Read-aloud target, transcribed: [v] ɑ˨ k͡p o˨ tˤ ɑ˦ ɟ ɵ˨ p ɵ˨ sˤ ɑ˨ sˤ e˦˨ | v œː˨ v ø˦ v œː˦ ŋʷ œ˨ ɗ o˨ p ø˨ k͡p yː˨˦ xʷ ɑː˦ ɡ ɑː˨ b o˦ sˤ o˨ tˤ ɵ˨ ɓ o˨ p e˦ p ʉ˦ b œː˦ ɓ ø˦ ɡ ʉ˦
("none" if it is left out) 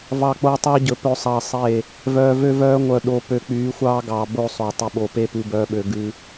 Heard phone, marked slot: v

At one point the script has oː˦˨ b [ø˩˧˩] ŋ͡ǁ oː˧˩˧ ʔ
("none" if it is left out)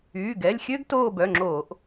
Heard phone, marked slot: œ˩˧˩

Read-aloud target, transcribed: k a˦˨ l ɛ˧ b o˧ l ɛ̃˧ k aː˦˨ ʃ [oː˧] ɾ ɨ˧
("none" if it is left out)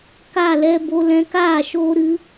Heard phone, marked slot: oː˧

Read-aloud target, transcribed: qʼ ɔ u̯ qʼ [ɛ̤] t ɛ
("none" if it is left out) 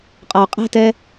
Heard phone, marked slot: ɛ̤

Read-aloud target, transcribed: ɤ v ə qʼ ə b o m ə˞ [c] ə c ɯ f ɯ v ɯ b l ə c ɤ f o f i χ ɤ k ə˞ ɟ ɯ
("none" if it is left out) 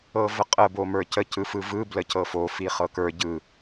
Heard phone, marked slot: c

